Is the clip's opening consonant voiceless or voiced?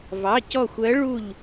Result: voiced